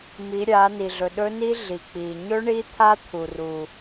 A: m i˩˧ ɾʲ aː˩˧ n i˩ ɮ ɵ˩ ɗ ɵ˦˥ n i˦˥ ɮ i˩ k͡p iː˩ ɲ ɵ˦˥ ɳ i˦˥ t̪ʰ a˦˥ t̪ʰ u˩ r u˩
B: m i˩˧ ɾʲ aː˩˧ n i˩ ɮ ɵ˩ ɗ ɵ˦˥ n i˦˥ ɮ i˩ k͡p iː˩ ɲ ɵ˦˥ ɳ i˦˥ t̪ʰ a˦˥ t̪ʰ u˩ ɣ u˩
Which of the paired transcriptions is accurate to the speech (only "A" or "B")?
A